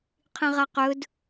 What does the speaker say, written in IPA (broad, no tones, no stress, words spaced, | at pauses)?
qʰĩʁaqɵd